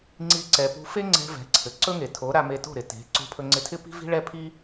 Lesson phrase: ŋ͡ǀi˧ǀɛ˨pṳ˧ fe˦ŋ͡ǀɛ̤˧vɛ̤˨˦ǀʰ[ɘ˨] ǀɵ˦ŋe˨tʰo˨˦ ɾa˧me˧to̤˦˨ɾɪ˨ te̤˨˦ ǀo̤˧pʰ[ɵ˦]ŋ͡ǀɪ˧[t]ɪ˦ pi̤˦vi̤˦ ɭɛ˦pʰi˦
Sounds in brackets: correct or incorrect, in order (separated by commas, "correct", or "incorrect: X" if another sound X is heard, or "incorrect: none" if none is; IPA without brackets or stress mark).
correct, incorrect: ɵ˧, incorrect: tʰ